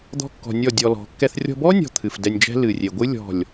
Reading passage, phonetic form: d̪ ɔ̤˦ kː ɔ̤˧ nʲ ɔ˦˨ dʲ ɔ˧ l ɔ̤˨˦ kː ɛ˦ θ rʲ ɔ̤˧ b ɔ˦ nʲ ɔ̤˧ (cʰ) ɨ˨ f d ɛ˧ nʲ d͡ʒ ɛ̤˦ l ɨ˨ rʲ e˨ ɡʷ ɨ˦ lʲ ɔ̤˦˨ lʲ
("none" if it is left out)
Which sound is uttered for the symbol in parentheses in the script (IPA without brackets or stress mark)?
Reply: t̪ʰ